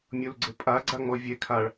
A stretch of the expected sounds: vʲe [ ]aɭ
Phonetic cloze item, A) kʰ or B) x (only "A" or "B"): A